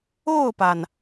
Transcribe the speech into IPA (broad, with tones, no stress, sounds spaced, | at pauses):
o˥˩ ʊ̯ p a˩ n